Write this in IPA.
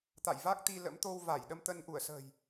t̪a̰˧˨jva˦˥k̚t̪i˧lə̰˧˥m t̪o˧wva˧˩jɗə˧mt̪ə˧n ʔu˧˩ə̯sə̤ː˨˩j

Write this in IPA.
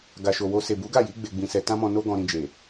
ɡa˨ʃo˨wo˧ se˨bu˨˦ɡa˦˨ji˨˦ ɡ͡be˧ɡ͡bĩ˧sɛ˧ tã˦mɔ̃˧no˦ ɡɔ̃˧ɾĩ˧d͡ʒe˨

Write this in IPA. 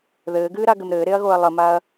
ðɘːɡɨːɾaɡɘm ɾɘːɾeɐ̯ɣoɐ̯ lˠəmaɐ̯

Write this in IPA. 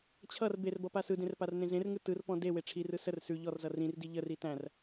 t͡ɕʰʌr berbʌ pasɯdẽr parnẽzẽrŋɯ tɯrpɔ̃ de weʈ͡ʂʰirɯ sər sʉ ʎɔrzʌ rĩrdi ʎəri tæ̃r

